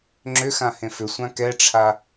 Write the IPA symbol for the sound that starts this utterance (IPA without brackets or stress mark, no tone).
ŋ͡ǁ